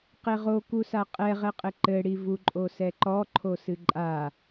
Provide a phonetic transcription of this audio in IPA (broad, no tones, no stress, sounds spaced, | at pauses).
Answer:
q e ʁ o k u s a qʼ ɛ ʁ ɛ qʼ ɘ ǃ ɘ ɽ i v u ǃʼ o s ɛ ǃ ɔ ǃʰ o s ɨ ǃʼ a